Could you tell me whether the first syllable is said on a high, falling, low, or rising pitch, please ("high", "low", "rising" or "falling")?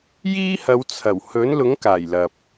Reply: high